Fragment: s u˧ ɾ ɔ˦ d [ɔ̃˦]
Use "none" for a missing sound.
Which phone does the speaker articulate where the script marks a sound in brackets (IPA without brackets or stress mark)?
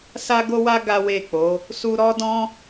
ɔ̃˦